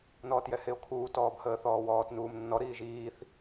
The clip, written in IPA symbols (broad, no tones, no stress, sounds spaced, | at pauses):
n ɔː t j ɛ h e o̯ kʰ uː t ɔː b h əː θ ɔː w ɔː t n uː m nː ɔ ɾ iː ʒ iː θ